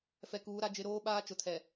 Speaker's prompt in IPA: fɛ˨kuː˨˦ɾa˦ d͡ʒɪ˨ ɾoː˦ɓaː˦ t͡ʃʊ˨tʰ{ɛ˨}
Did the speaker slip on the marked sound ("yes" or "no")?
no